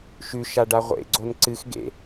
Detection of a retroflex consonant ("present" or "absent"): present